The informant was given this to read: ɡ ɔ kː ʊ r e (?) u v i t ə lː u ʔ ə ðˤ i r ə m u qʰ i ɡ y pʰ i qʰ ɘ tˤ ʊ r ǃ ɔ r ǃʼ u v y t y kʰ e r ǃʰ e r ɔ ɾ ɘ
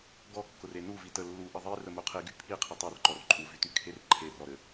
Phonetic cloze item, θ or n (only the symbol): n